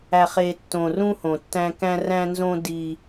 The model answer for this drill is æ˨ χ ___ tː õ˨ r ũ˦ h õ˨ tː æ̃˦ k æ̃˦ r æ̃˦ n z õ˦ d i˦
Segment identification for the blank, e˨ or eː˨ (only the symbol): e˨